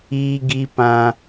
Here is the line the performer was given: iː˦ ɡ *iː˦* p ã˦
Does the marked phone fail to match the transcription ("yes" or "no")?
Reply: yes